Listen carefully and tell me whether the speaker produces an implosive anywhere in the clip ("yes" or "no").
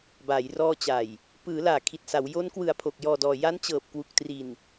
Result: no